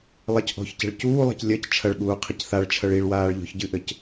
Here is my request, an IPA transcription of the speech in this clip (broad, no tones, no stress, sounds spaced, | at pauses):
lˠ ɛ c ʔ ɔ̤ ç c ɛ̤ ɭ c uː lˠ ɛ̤ c lʲ ɐ c t͡ʃʰ ɐ ɭ ɠ uː qʰ i c θ a ɭ t͡ʃʰ ɐ ɭ i ɭ w aː ɭ ʎ ɔ̤ ç ɟ ɨ ʔ ɘ c